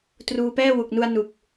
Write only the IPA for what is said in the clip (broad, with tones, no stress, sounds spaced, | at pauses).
t r uː˧ p ɛː˥˩ w u˨˩ k̚ n u˧ a̯ n u˨˩ k̚